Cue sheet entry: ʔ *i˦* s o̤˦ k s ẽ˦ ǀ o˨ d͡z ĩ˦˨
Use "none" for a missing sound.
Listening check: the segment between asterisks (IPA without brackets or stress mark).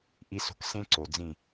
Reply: i˦